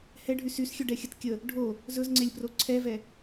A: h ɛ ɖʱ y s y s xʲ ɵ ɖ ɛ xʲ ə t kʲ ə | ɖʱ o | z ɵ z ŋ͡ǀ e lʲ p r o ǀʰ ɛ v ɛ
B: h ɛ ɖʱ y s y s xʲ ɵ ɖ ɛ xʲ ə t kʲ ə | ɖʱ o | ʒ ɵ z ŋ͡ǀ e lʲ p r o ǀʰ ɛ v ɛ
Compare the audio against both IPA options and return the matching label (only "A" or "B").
A